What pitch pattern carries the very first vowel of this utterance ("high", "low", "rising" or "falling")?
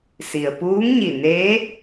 low